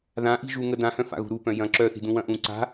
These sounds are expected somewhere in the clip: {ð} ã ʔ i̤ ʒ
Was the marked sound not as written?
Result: no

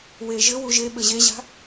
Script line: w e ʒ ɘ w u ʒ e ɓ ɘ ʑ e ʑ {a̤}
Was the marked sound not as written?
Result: no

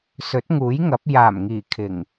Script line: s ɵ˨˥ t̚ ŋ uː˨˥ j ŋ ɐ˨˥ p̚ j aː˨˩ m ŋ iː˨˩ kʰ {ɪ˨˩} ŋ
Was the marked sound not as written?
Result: no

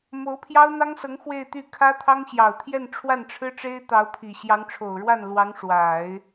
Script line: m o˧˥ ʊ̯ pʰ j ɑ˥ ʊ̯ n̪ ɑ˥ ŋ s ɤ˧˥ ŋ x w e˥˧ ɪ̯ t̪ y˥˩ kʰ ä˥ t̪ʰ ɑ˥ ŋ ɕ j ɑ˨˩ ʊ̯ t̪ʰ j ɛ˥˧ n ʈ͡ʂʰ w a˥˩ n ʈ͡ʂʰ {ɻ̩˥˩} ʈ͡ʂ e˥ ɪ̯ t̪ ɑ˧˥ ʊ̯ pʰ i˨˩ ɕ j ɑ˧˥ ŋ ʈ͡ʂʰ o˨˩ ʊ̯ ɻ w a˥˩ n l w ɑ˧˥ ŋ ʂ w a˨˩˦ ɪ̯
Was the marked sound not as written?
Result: yes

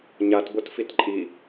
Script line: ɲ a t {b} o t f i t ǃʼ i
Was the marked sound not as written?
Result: no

